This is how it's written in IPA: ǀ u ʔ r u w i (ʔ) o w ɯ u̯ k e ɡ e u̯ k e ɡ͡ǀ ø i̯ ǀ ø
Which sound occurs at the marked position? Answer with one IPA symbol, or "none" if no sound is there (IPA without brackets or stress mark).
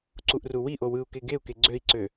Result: ʔ